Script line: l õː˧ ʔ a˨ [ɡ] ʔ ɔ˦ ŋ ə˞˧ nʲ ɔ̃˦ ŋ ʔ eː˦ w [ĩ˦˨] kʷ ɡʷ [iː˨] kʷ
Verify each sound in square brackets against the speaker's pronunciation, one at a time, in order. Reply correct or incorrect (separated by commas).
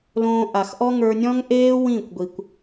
incorrect, correct, incorrect